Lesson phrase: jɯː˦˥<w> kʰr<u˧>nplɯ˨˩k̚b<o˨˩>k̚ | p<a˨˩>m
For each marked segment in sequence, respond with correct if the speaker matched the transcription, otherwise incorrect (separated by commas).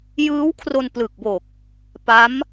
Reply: correct, incorrect, correct, incorrect